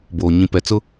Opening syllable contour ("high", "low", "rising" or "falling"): low